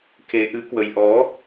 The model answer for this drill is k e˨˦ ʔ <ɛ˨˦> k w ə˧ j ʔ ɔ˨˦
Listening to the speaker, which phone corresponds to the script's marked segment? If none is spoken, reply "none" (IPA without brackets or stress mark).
ɨ˨˦